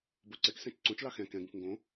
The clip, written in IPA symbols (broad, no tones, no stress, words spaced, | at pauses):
boǀɛksɛ̃t͡ʃ ǀõt͡ʃlɑ xɛ̃ kɛ̃ɡũk ŋɡõ